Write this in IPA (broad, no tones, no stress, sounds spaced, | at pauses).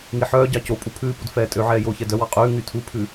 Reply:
ŋ i ħ œː ɟ ɑ c o pʼ u pʰ ʉː p u d f ɛː tʼ ø ʕ ɛː j oː ç ɛ d œ w ɑ qʼ ʉː ŋ y tʰ u pʰ ʉ